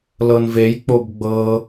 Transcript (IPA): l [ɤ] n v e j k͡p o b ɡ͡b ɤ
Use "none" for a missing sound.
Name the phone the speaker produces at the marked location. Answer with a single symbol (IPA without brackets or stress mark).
ɤ